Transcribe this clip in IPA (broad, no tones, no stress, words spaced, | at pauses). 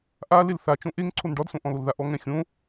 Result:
ʔa lelθat͡ʃõ ʔeŋ ǀʰonɖɒdsõ ʔɔ̃lolðaʔɔ ŋɛ̃xʲõ